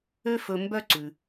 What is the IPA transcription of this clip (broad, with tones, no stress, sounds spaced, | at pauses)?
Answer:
ø˦ f ɵ˨ m b œ˦ ǀ ʉ˩